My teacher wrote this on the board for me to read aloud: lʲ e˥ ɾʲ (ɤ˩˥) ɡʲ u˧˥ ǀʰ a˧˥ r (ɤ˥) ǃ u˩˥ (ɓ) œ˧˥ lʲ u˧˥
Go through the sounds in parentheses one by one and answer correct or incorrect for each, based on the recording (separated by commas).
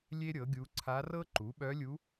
correct, correct, correct